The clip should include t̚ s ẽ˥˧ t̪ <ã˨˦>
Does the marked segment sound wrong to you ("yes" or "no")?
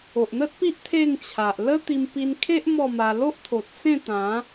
no